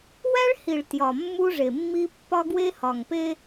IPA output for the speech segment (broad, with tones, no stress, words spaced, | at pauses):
wæ˦ɭhi˨ɭ tjɒ˨ mːu˦ʐe˨mːi˦ pːɒ˦ɡwe˦hɒ˨ŋpe˦